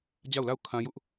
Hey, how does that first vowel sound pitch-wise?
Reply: falling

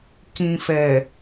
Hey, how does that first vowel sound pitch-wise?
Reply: low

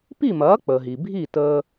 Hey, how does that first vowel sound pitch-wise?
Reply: falling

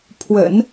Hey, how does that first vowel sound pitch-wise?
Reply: low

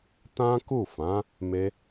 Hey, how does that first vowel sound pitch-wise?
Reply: high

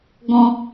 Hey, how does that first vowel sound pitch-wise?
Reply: high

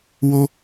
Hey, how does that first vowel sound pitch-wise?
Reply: high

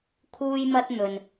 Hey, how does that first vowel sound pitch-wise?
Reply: high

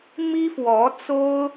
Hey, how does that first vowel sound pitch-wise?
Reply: high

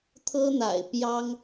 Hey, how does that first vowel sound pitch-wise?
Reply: high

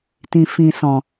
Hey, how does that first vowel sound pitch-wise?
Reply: low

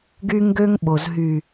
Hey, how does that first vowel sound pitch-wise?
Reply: high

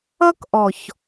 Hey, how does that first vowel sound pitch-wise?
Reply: high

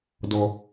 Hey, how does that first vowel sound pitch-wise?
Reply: low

